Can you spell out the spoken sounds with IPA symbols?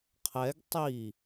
qʰ ɛ ɡ tˤ i

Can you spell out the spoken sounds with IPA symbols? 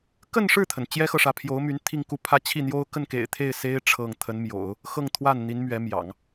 k ə˥˧ n ʂ ɻ̩˥˩ t̪ʰ ə˩ n t͡ɕ j ɛ˥ x ɤ˨ ʂ ä˧˥ pʰ j o˧˥ ʊ̯ m y˧˥ n t̪ʰ i˥˧ ŋ k u˥˩ pʰ ä˥ t͡ɕʰ i˥˩ n̪ j o˥ ʊ̯ k ə˥˩ n k ḛ˨˩ ɪ̯ t̪ʰ e˥˩ ɪ̯ s e˥ ɪ̯ ʈ͡ʂʰ ɤ˥˩ ŋ t̪ʰ ə˧˥ n m j o̰˨˩˦ ʊ̯ | x ɤ˥˧ ŋ t̪ʰ w a˥˩ n n̪ i˧˥ n m ɥ ɛ˧˥ m j ɑ̰˨˩˦ ŋ

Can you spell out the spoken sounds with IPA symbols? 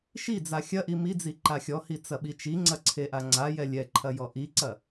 ʃ i d͡z a xʲ ɐ ʔ i m i d͡z i ǃ a xʲ ɔ h i t͡s ɐ ɓ i t͡ʃ i ŋ͡ǀ ɐ ǀʰ e ʔ a ŋ͡ǀ a j ɛ lʲ ɛ ǃʰ ɐ j ɔ ʔ i ǀ ɐ

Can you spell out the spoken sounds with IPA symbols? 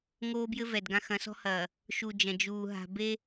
ŋ oː˦ b j ɘ˦ v ɛ˨ d ɡ ã˦ x ɐ̃˨˦ s ɔ̤˦ h ɐː˨ | ʃ u˨ d͡ʒ ɐ̃˨ d͡ʒ uː˨ ɦ a̤˨ b e˦

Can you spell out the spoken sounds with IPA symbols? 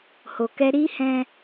h o˨ k ɛ˧ ɾ i˦ h ɛ̃˦

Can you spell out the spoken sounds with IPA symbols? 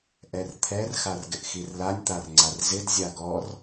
ʔ ɛ r t̪ʰ ɛ r x a r ɡ ɪ ʔ x i r l a nʲ t̪ a r ŋ͡ǀ a r z ɪ d zʲ a ɡ ɔ r

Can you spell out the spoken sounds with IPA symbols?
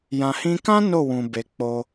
j ã˨ h ĩ˧ k ã˦ n o˦˨ w ũ˨ b e˧ k͡p o˦

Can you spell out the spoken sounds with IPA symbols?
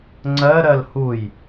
ŋ͡ǀ ɜ ɾ ɜ l h u j

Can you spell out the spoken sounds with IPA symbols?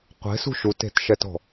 qʷ e̤ s ṳ ʃ u t e̤ t ʃ ɛ t ɔ̤

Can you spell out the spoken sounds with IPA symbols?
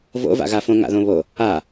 v o̰ v a̰ ɣ a f õ ŋ a̰ ð õ β o | a

